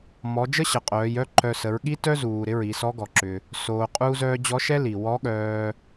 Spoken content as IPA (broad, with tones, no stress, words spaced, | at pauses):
mɔ˩˧ d͡ʒə˥ɕə˩qʼœː˩˧jœ˧˥ ǃœ˧ sə˩˧ɹɠi˥ tœ˥zuː˩ ɾɪ˧˥ɹi˩˧sɔ˧˥ ɡɔ˩ǁʏ˩ | soː˩qʼuː˧zœː˧ d͡ʑɔ˧˥ʃɛ˥ li˩wɔ˧˥ɠœː˧